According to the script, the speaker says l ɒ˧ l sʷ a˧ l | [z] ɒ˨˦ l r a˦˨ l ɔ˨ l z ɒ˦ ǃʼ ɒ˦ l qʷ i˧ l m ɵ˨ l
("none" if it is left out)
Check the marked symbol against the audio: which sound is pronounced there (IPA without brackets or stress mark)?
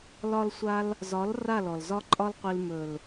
z